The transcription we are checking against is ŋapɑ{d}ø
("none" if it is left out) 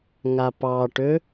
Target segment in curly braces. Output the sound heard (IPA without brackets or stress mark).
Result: ʈ